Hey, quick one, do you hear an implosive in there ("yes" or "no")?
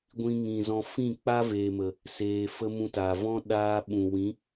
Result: yes